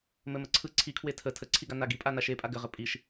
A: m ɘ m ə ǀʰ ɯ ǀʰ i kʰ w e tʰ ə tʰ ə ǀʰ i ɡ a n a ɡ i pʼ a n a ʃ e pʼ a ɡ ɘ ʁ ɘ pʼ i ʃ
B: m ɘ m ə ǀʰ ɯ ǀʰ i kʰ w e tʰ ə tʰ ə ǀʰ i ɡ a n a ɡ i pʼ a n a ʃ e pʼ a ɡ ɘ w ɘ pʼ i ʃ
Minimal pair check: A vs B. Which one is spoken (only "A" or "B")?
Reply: A